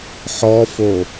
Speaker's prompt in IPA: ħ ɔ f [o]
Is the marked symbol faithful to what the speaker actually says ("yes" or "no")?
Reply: yes